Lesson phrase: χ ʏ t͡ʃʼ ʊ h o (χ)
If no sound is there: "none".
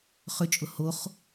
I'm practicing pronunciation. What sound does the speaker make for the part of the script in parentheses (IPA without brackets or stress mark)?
χ